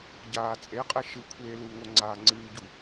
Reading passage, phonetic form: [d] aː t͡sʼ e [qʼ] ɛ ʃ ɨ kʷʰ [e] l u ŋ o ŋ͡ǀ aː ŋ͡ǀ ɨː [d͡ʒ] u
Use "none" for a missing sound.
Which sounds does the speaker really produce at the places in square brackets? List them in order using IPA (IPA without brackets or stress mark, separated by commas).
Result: ɟ, qʼ, eː, ɟ